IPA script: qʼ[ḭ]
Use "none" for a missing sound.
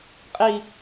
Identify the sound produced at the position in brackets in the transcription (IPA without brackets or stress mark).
i